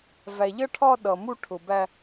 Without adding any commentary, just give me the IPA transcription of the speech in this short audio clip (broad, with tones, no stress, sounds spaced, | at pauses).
v æ˨ ʎ ʌ˦ ʈʰ ɒ˦ ɗ ʌ˨ m u˦ ʈʰ ʊ˨ b æ˦